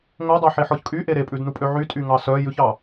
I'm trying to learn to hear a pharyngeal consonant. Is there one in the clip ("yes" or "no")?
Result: yes